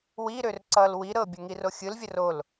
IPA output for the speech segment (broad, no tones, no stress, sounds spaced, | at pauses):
w i ɾ ø r ǀ ʌ l w i ɾ ɤ bʲ ə ŋ i r o xʲ ɯ l vʲ ə r o l